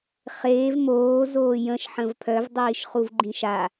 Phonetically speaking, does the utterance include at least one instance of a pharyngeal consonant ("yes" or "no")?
yes